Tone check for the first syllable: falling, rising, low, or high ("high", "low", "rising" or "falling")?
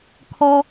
high